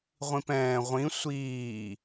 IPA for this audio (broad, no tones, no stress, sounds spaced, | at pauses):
ʁʷ ĩ p ɛ̃ː ʁʷ ĩ sʷ iː